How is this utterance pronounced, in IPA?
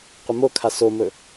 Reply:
qʷ ə m o kʰ a s o m ɵ

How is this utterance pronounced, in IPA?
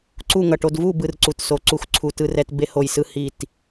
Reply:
ǀ u˥˨ ŋ ʌ˧˩ ʈ o˧ d v u˥˨ b ɯ˧ r ǀ u˧˩ t s o˧˩ ǀ u˧ x ǀʰ u˧˩ t ɯ˧ r ɛ˧ t b e˧ h o˧˩ j s ɯ˧ h i˧˩ t

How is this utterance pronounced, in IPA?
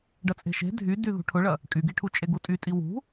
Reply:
ɖ ɐ t͡sʼ e̤ ʃ e̤ dʱ y d y ð ṳ ʈʰ ʊ ɭ ɐ | kʼ y ɡ i ʈʰ u t͡ʃʼ e ɡ u tʼ y tʼ i w ṳ

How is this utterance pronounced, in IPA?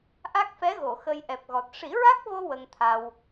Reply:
ʔ a˦˥ k̚ f ɛ˧˥ ɣ o˨˩˨ x ə˧ j ʔ ɛ˨˩ p̚ ɣ ɔ˨˩ t̚ ʂ i˨˩˦ ɹ a˦˥ k̚ v o˧ w ə˧ ŋ t̪ʰ a˧ w

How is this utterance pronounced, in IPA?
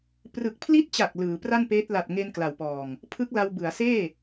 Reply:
p r ɯ˨˩ k̚ pʰ l i˦˥ t̚ t͡ɕ a˨˩ k̚ l ɯː˩˦ p r a˥˩ n p eː˦˥ t̚ l a˨˩ t̚ ŋ e˧ n k l a˨˩ w p ɔː˨˩ ŋ | pʰ ɯ˦˥ k̚ l a˧ w b ɯ˩˦ a̯ s eː˥˩

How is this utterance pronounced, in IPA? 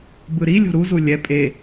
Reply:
b ɯ ɾ i lʲ o̤ ɾ u z u lʲ ɛ pʼ e

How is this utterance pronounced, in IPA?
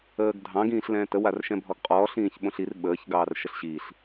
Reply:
əː ɡ dʱ ɑ̃ ɡ ĩː ɬ l ɛ̃ː t ə w a r ʃ ɛ̃ bʱ ɔ ɡ qʼ ɔː ɬ ĩː ç ɓ õ ɬ i r ɓ əː ç ɡ ɑː r ʃ ə ɬ ɕ i ɬ

